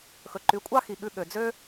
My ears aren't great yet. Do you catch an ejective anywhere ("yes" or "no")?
yes